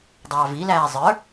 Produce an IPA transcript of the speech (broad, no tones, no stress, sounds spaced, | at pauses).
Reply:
dˤ ɑː v i l æː zˤ ə˞